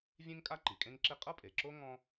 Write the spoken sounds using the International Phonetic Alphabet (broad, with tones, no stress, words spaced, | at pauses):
vʲẽ˥ŋkʼa˥ ǃi˩kʼẽ˥ŋǁe˥ qʼɤ˥pʼe˩ǁo˥ ŋɔ̃˥